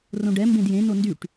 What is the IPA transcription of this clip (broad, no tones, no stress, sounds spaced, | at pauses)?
r õ ɖ ɛ m b ẽ d j ẽ n o n d y ʈ